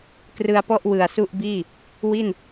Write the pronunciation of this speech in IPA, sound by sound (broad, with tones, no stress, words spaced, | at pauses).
krɯ˧a̯pɔ˥˩ʔ wɯ˨˩a̯su˥˩ʔ biː˥˩ | wi˥˩n